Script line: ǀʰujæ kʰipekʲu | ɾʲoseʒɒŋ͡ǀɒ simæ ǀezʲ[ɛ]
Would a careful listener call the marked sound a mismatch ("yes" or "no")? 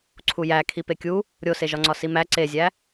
yes